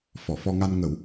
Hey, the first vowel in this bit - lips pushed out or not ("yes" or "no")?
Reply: yes